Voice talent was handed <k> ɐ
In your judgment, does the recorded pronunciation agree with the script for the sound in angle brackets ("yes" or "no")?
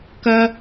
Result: yes